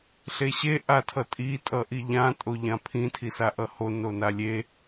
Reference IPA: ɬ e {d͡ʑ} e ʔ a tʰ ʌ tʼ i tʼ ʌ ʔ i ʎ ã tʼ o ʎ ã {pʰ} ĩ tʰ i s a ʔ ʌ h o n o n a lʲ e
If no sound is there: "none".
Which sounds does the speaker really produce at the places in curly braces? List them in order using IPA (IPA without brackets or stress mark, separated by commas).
ɕ, pʰ